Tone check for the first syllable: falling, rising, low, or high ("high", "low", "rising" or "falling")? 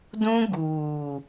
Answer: high